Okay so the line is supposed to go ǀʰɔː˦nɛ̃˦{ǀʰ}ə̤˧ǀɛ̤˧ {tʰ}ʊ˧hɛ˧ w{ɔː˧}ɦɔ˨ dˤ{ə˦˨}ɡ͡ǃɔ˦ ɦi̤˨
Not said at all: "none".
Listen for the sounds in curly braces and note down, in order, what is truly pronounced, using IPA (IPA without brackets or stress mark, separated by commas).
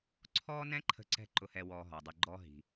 ǃʰ, ǃ, ɔː˧, ə˧